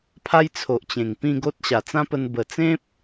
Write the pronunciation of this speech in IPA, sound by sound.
pʰa˦jt͡sʰo˨ʔ t͡ɕẽ˨˩ŋpĩ˥˧ɡo˦t̚ ɕa˨˩t͡sã˦pə˧n bə˨˩t͡sẽ˦p̚

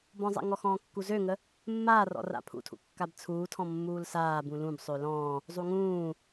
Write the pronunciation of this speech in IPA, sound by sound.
bɔ̃zˤa̰ŋɔ xɔ̃ːkːuzøŋə | mːaːrɔ̰ ra̰pʰṵtʰṵ kːabt͡sʰuːtʰɔ̃ mːuːlsaː bũlũb sˤølɔ̃ː | zˤuŋũː

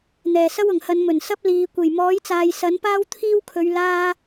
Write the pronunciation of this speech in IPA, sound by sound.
n̪ɛː˨˩sɐ˥wʊ˨˩ŋhɐ˨˧n mɵ˨˩nsɐ˥p̚ liː˨ kʷe˨˩jmɔː˨˥jt͡saː˨j sɐ˨˥npaː˥wt̪ʰiː˥wkʰɵ˨˧ɥ laː˥

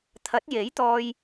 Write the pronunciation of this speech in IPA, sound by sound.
t̪ʰɐ˨˥t̚je˨˥jt̪ɔː˧j

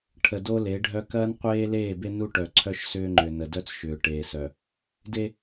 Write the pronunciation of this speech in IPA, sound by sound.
ʈʰə˨do˦le˨˦ɖʱœ˦ kɐː˦nqʷeː˦leː˦˨be˦ nu˦ʈœ˨ǀʰœ˦ʃ sʏː˦ŋ͡ǃʏ˨ nə˨dœ˦t͡sʃʏː˨ ʈeː˨sœ˨ | de˦

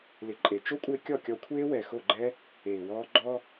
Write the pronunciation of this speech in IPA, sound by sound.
lɪ˨˦ǃʼe˨ t͡ʃo˦kʷʼɪː˧ kʲɔ˦˨kʲɔ˧kʷʰeː˦wɛ˨ xo˦˨ɡ͡ǃɛ˦ | eː˨wɔː˦ ɡ͡ǃɔ˦

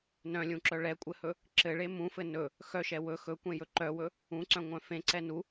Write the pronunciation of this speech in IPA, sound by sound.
nœ̃lʲũǁœ ɭɛkʷʼɘhɵ | ǁɘɭe mũfɘ nɵ | xœʃɛ wɵ xɵkʷẽjɵ ǃœwɵ | ũǀœ̃ŋʷœ̃ fẽǀɛ nu

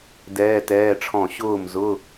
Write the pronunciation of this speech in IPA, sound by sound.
dɛː˧˥˧tɛː˧˥˧ʈ͡ʂʰɔ̃˥˩ ɕʊː˥˩mzʊ˧˥˧

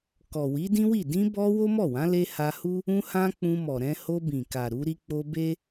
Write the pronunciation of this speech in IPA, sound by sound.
kɔ˨wi˨˦dĩ˦wi˦˨ dĩ˧bɔ˧ wo˦mɔ˦˨wã˨˦ le˧ha˧hu˦ | ũ˧hã˧ k͡pũ˧mɔ˨ ɾɛ̃˧ho˧bĩ˨ka˨ ɾu˨˦ɾi˦ k͡po˧be˦

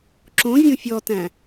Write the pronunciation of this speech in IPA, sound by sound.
ǁõvʲõ fʲɔtæ̃

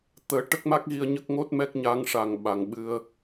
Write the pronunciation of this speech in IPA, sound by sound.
t̪əː˨˩˦ ʈə˦˥k̚ma˦˥k̚ɣi˧ə̯ ɲə˦˥k̚ŋo˦˥t̚mɛ˦˥k̚ ɲa˧˥ŋʂa˨˩ŋ ɓa˨˩ŋɓɨ˧ə̯

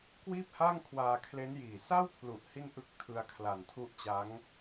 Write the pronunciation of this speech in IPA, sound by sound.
kwiː˥˩p̚ha˥˩ŋ kʰwaː˧kʰle˦˥njiː˨˩ sa˥˩wpʰlu˨˩ʔ hi˥˩nʔɯ˦˥k̚tʰɯ˧a̯ kʰla˨˩ntʰu˦˥ʔt͡ɕa˦˥ŋ

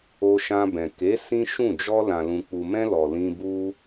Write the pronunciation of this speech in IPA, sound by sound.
o˧ʃã˧bɛ̃˨ ke˨˦ sĩ˦ ʃũ˦˨ d͡ʒɔ˧ lã˨lũ˨k͡pu˨mɛ̃˧ lɔ˨lĩ˧bu˦

